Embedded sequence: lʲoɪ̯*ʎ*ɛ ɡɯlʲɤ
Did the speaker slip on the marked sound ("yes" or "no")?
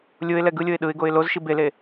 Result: yes